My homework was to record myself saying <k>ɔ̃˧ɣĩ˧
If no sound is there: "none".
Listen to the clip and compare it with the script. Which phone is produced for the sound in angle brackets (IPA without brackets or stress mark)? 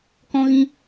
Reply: k